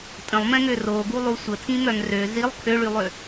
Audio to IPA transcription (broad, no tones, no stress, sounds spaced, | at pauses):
tʼ ə̃ lˠ m ɛ̃ ŋ ø r o ɡ u lˠ u sʷ ə tʰ ĩ m œ ŋ r ø z i lˠ kʰ ø ɭ y lˠ ø